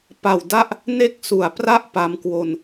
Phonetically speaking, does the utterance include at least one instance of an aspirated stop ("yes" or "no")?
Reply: no